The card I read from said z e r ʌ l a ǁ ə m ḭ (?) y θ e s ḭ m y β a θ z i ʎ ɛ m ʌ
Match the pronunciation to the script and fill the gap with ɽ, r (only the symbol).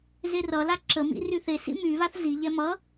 r